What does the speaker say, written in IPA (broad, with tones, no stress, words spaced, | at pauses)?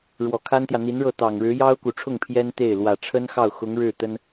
ɻwɔ˨˩kʰa˥nt̪jä˨ n̪i˧˥nɻɤ˥˩ t̪ɑ˨˩ŋɻɻ̩˧˥ jɑ˥ʊ̯ku˨˩ʈ͡ʂʰʊ˥˩ŋ pʰjɛ˥nt̪e˥˩ɪ̯ lwä˨˩ʈ͡ʂʰə˥nxɑ˥˩ʊ̯xʊ˧˥ŋ ɻɻ̩˥˩ t̪ə˥n